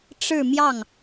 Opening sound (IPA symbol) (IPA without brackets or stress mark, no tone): ʈ͡ʂ